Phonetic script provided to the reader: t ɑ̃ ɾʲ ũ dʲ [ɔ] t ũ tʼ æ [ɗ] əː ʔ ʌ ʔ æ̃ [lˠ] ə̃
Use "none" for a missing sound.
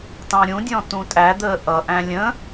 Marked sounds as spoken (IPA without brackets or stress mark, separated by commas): ɔ̃, d̪, lʲ